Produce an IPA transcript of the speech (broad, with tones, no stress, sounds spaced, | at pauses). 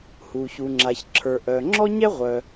h u˩ ç u˩ ŋ͡ǁ a˩ ç ǁʰ ə˞˩ ʔ œ˩ ŋ͡ǁ ɔ˥ ɲ ɛ˥ ʁʷ œ˩